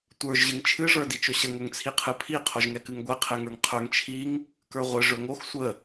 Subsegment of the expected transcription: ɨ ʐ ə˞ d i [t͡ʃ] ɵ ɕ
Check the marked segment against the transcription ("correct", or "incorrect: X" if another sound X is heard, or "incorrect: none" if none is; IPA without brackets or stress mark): correct